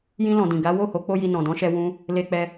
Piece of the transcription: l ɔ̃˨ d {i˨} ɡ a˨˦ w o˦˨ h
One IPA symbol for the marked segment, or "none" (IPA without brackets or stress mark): ĩ˨